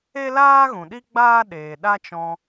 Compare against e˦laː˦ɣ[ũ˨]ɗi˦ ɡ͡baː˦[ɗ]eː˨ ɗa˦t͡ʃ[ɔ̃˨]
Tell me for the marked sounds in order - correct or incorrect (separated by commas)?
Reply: correct, correct, incorrect